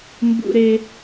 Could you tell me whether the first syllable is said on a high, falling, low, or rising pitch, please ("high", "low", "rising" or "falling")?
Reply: high